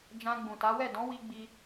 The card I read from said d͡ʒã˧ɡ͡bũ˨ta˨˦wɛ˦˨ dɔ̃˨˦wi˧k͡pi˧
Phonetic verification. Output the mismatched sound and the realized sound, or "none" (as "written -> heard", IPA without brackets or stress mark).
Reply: k͡p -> ɡ͡b